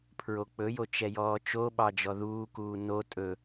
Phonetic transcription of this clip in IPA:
pʰ ɹ o k͡p ɵ j o t͡ʃ ɛ j ɔː t͡ʃ o ɓ ɑ d͡ʒ ɔ ð uː k uː n o tʼ ɵ

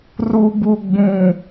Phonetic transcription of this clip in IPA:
r u˨ b u˨ ɡ͡b ũ˨

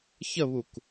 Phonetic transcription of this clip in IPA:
ç ə β u k

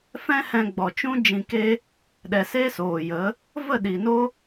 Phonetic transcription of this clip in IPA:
f ɛ̃˦ h ɛ̃˧ ɡ͡b ɔ˨ t͡ʃ ũ˦ d͡ʒ ĩ˧ k e˦ | ɗ ɛ˨ s e˦ s oː˨ j ə˨˦ | v ə˦˨ ɗ i˨ n o˦

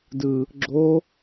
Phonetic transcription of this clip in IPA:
d ɯ | ɡ͡ǁ o

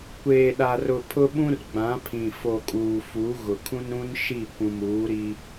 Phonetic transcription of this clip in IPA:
kʷ eː˨ ɗ a˨ r ʊ˨ pʰ ʊ˦ ɓ ũ˦ r ɡ͡b ã˨˦ pʰ ĩ˨ f o˨ kʼ uː˨ f u˨˦ ɣ ʊ˨ kʰ ũ˦ n ɾ ũ˦ n ʃ i˦˨ kʷ ũ˨ m uː˨˦ ɾ i˦

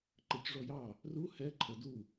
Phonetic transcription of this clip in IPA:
ǃ ə c ʐ ɔ j ɑ | r u h ɛ ǃʰ ə d u

